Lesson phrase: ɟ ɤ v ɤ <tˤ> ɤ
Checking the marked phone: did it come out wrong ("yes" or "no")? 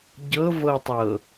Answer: no